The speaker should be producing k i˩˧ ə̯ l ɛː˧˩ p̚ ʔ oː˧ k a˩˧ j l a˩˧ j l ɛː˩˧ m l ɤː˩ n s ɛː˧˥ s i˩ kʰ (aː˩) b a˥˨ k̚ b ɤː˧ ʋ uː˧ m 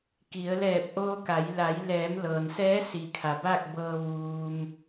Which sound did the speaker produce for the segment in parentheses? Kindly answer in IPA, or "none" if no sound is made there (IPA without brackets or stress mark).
a˩